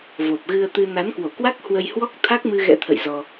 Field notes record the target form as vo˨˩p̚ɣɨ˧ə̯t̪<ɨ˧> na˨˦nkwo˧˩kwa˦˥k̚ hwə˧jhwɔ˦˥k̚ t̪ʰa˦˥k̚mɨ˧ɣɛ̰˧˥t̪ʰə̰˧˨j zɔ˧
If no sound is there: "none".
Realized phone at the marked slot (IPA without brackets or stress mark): ɨ˧